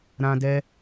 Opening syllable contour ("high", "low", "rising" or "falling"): high